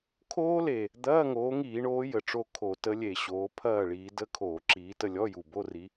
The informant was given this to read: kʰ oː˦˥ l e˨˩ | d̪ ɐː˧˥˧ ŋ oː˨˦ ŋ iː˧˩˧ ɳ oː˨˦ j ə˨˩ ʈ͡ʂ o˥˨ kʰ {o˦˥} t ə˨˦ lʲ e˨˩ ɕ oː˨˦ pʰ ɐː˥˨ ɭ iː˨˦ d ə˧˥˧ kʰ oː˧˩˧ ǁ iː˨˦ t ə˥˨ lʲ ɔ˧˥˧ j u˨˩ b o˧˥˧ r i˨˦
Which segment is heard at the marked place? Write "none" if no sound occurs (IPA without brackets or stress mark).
o˧˩˧